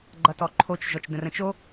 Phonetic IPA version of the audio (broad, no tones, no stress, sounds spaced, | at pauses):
ɡ͡ǃ ʌ t ɔ ǃʰ o t͡ʃ ʒ ɔ t͡ʃ d ə̃ r ə̃ t͡ʃ o